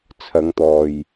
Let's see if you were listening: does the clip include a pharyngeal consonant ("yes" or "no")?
no